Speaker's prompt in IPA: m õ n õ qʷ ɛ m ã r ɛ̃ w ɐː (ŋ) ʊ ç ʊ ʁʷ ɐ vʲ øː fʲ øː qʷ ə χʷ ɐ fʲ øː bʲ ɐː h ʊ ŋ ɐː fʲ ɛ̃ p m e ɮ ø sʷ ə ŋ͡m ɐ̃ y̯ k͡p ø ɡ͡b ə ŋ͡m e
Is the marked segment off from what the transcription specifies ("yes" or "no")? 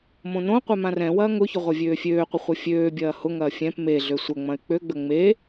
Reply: no